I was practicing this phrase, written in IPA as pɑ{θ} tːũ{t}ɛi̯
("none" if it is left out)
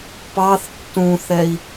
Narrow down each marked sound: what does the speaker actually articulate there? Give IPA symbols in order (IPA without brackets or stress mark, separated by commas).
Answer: θ, θ